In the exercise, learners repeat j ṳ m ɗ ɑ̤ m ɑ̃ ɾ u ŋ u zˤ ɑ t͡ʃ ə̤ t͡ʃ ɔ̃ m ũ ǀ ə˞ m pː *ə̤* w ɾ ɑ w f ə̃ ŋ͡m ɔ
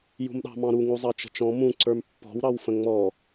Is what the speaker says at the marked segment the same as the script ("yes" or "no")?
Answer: no